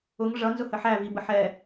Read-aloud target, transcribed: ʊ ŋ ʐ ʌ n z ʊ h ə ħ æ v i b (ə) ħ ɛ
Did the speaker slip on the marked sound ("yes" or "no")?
no